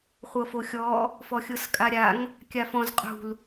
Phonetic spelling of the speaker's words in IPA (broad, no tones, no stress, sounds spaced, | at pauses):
χʷ ɤ f o xʲ ɔ | f ɔ xʲ ɤ s kʼ a ɾʲ a ŋ | kʲ a f ɔ̃ z qʼ ṳ l